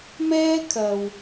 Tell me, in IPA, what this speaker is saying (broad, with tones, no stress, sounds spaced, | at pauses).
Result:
m ɛː˥ kʰ ɐ˨ w